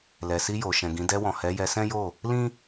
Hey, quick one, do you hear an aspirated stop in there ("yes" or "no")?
no